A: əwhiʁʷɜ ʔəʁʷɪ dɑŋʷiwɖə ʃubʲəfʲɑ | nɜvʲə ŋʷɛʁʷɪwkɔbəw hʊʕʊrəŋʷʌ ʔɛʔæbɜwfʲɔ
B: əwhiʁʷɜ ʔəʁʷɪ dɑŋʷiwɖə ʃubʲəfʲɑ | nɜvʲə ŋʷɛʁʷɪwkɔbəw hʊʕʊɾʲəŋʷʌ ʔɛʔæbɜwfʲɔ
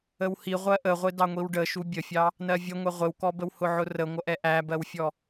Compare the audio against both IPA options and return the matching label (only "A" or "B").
A